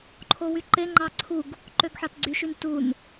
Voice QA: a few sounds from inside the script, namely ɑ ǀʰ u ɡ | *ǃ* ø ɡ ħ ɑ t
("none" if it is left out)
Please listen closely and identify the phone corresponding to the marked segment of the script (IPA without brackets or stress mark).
ǃ